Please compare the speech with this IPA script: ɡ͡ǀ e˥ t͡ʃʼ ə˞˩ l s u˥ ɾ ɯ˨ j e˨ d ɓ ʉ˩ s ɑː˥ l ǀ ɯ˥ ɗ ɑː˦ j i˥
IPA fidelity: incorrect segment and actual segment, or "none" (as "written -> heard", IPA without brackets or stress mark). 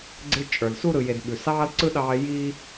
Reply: none